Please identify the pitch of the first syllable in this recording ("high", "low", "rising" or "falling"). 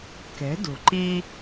rising